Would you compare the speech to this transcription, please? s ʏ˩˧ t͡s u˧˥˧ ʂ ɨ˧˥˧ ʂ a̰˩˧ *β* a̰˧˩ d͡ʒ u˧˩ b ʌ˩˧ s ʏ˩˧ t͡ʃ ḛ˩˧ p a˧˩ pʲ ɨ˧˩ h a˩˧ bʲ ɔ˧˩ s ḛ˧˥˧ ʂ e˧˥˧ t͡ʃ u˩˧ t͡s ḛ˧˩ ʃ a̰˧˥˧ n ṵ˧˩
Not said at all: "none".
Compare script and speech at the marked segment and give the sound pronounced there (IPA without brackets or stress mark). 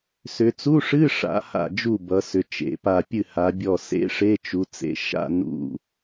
h